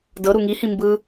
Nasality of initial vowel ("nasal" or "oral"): oral